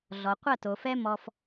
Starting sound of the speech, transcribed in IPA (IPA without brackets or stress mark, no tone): ɮ